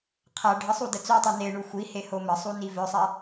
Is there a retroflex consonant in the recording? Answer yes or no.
yes